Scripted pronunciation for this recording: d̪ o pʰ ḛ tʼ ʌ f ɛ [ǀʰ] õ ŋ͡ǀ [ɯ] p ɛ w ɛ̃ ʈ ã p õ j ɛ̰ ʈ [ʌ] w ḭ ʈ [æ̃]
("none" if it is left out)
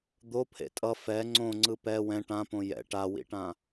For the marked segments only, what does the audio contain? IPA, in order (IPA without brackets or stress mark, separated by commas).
ŋ͡ǀ, ɯ, a, ã